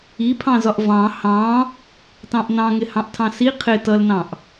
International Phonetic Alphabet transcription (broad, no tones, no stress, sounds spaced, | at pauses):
i pʰ ɑ̃ z ɒ ʔ v ɑ̃ h ɑ̃ | t ɑ̃ ʔ n ɑ̃ ŋ ɪ h ɑ̃ ʔ tʰ ɑ̃ s i qʰ ɪ t ʌ l n ɑ̃ ʔ